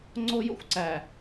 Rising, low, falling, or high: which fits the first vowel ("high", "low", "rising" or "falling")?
high